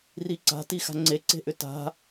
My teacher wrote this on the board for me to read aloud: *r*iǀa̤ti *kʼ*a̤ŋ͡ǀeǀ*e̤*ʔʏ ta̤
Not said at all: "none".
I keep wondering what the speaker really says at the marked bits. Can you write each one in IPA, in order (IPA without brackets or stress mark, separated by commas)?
r, x, e̤